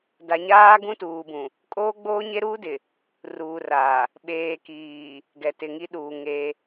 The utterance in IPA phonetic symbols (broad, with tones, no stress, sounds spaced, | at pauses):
d a˨ ɲ aː˦ ɡ ũ˦ t uː˨ b ũ˨ | kʼ oː˦ ɡ͡b oː˦ ɲ e˦ ɾ uː˦ d ɪ˨ | r uː˨ r aː˨ | ɓ eː˨ k iː˨ | ɡ ɛ˨ t ɪ˨ ŋ i˦ ɗ uː˨ ŋ e˦